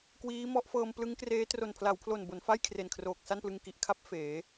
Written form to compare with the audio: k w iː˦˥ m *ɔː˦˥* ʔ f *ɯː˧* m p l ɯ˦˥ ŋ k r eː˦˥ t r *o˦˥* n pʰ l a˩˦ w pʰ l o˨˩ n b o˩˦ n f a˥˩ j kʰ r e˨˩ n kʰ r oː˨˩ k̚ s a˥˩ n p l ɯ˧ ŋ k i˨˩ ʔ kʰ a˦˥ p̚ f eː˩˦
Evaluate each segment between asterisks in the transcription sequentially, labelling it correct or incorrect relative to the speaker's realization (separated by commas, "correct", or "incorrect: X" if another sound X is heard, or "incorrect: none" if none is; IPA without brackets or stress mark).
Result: incorrect: ɔ˦˥, incorrect: ɤː˧, incorrect: o˨˩